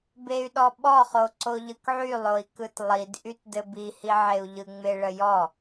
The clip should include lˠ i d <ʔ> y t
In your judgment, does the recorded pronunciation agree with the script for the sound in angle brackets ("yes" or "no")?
yes